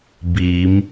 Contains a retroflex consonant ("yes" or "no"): no